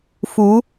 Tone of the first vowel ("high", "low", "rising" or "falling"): rising